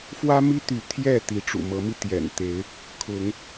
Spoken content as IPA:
f w ä˦ m i˦ t̪ y˨˦ t̪ʰ j ɛ˥˨ t̪ i˨˦ ʈ͡ʂ ṵ˨˩ m ɤ˨˦ m i˧ t̪ j ɛ̰˨˩ n t̪ e˨˦ ɪ̯ | kʰ ʊ˨˦ ŋ

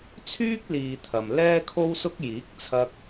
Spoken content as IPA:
t͡sʰ yː˥ k̚ l iː˨ t̪ʰ ɐ˨ m l ɛː˥ kʰ o˥ w s ʊ˥ k̚ j iː˨˥ k̚ t͡sʰ ɐ˧ k̚

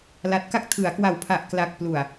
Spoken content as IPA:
l a˨˩ t̚ k a˦˥ k̚ tʰ ɯ˩˦ a̯ k w a˨˩ w pʰ a˨˩ ʔ k l a˨˩ k̚ p l u˨˩ a̯

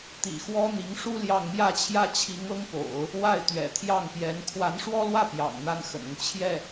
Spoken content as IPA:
t̪ ḭ˨˩ x w ɔ˥ n̪ i˧˥ ŋ ʂ u˥ l j ɑ˥˧ ŋ m j ä˥˩ t͡ɕʰ j ä˥ t͡ɕʰ i˧˥ ŋ ɤ˥ ŋ p o̰˨˩˦ ʊ̯ | w a˥˩ ɪ̯ t̪ ɥ ɛ̰˨˩ t̪ʰ j ɑ˥˩ ŋ p j ɛ˧˥ n kʰ w a˧˥ n ʂ w ɔ˥ l w ä˥˩ p j ɑ̰˨˩ ŋ n̪ a˥ n x ə̰˨˩ n ʊ˦ ŋ t͡ɕʰ j ɛ˥˩

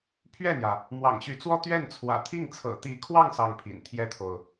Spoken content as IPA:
pʰ ɥ ɛ˥˩ n̪ j ä˩ | m w ɑ̰˨˩ ŋ ɕ y˧˥ t͡s w ɔ˥ t̪ ɥ ɛ˥˩ n t͡sʰ w ä̰˨˩ t̪ʰ i˥˩ ŋ t͡sʰ ɤ̰˨˩ t̪ i˧˥ kʰ w ɑ˥˧ ŋ s ɑ˥˩ ŋ pʰ ḭ˨˩ n t̪ʰ j ɛ˥ t̪ʰ o˨ ʊ̯

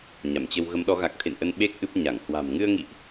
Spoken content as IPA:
ɲ a˧˩ m t͡ɕ ə˧ w ɣ ə˨˦ m ɗ ɔ˨˦ ɣ a˨˩ k̚ t̪ʰ ḛ˧˨ n ʔ ə˧ n ɓ e˦˥ k̚ ʔ ɨ˦˥ p̚ ɲ a˧˩ ŋ h w a̤˨˩ m ŋ ɨ˧ ə̯ ŋ ḭ˧˨ ʔ

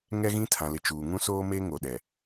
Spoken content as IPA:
ŋ ɛ˦ ɣ ĩ˦ tʰ ã˨ l ɪ˨ t͡ʃ uː˨ ŋ ũ˦ s oː˦ m e˦ ŋ o˨ ɗ ɛ˨

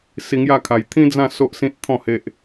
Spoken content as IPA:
s i˧ ŋ j a˥˧ kʰ a˧ j t̪ʰ ĩ˦ d͡z ã˥˧ s o˦ ʔ s ĩ˦ t̚ t̪ʰ ɔ̃˥˧ h e˦ ʔ

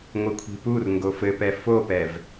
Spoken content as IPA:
ŋʷ ɨ kʷʰ i̤ p u r ŋ ɡ o f ɘ p ɛ f o p ɛ v

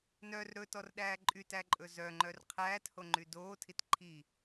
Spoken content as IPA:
n œ r ɾ ɵ t ɔ r ɗ æː ǃʼ y t æ ǃʼ ɵ z œ ŋ͡ǃ œ r qʰ æː t h o ŋ͡ǃ y d oː tʰ i t ǃʰ i

